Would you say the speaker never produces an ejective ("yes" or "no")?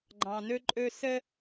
no